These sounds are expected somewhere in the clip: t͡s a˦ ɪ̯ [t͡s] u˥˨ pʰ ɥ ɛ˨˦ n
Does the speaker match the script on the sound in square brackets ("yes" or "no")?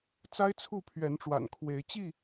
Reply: no